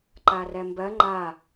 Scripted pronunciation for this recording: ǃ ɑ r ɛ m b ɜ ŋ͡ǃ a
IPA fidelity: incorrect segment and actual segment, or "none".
ɑ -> a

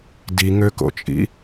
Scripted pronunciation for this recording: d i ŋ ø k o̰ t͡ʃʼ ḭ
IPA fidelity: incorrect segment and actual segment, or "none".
none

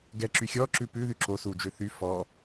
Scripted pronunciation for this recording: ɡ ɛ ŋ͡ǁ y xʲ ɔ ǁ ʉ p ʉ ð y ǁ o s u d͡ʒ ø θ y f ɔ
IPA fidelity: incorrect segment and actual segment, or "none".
ŋ͡ǁ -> ǁ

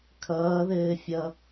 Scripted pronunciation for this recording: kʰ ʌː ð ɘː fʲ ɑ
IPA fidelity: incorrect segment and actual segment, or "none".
ɑ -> ʌ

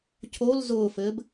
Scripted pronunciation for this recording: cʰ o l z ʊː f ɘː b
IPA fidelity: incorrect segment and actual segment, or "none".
none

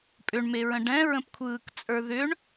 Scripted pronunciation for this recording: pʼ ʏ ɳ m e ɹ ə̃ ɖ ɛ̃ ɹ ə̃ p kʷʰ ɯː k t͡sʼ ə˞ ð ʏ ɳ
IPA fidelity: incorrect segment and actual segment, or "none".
none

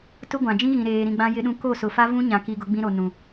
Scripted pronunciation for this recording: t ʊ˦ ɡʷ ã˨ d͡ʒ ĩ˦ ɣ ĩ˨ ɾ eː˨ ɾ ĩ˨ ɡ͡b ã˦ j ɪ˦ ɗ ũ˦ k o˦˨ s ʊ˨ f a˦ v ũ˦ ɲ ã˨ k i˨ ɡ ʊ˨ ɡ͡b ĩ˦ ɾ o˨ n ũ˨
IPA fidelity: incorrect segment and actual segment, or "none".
none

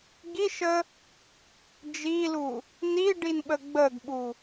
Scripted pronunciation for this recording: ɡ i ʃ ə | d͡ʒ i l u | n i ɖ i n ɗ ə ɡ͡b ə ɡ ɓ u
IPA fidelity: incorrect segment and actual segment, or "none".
ɗ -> ɓ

